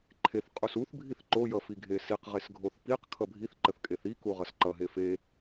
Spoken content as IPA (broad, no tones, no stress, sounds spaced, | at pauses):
ǃʰ e θ qʼ u s u θ bʱ i θ ǃ o j ʌ f i ɡʱ e s i q ʁ e s ɡʱ o θ p i q kʰ ʌ bʱ i θ ǃ ə θ kʼ e θ i k u ʁ ʌ s ǃ ʌ ɦ e f e